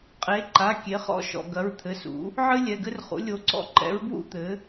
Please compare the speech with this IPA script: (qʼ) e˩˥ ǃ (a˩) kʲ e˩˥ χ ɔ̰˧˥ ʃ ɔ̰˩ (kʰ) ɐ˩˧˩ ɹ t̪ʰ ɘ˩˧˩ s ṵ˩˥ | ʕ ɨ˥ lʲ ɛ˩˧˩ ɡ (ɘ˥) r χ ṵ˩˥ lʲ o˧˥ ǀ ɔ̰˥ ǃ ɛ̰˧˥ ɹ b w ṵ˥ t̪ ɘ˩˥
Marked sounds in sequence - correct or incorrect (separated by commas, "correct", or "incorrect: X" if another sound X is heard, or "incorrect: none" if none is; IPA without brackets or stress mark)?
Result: correct, incorrect: a˩˧˩, incorrect: ɡ, correct